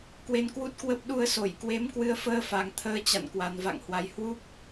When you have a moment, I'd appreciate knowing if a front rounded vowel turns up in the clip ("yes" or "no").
no